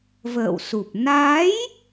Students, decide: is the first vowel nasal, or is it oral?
oral